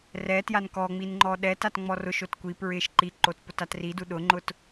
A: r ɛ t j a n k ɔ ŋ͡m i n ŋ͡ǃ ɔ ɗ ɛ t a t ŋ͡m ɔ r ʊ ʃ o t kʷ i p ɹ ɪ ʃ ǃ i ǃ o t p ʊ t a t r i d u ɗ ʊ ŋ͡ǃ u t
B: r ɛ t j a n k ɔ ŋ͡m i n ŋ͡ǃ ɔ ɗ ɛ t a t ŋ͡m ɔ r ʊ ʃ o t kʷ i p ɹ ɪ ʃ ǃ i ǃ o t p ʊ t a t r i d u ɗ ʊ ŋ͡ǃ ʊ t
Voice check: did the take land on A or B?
B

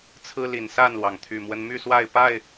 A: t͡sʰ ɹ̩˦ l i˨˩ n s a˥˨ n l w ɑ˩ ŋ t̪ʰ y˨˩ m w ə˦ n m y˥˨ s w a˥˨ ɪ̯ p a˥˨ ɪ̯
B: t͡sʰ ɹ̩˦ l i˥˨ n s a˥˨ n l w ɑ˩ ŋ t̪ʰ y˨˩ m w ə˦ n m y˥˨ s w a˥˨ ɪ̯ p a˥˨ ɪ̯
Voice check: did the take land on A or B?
A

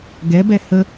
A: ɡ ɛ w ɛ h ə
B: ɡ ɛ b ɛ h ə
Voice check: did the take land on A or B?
B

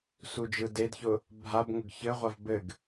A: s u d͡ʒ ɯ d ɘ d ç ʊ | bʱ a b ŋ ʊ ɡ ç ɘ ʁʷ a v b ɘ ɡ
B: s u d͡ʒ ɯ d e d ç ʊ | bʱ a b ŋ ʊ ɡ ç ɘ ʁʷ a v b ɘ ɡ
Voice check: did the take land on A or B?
B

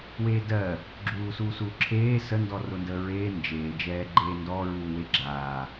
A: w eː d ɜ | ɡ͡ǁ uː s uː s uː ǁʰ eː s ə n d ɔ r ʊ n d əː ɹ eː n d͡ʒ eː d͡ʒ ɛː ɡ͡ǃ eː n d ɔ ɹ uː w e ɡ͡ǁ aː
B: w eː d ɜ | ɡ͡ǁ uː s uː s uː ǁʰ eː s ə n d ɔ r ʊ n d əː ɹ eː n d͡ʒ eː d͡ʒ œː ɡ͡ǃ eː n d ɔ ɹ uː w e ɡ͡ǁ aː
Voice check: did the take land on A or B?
A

